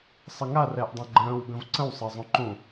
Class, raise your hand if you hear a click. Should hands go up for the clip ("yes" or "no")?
yes